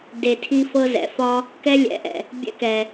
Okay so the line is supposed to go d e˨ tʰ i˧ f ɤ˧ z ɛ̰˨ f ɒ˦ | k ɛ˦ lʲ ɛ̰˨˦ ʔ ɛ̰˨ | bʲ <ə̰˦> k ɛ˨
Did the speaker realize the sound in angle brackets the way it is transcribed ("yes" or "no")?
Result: no